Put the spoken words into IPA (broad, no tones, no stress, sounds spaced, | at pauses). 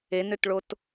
e n ø t ɭ o t